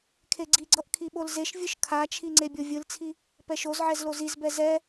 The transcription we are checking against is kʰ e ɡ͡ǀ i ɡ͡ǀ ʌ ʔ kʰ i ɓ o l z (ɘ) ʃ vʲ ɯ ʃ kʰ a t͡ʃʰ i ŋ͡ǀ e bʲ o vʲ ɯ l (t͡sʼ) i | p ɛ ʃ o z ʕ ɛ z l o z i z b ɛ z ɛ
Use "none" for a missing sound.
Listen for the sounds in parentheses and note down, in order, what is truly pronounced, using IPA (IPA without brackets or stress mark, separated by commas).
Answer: e, t͡sʰ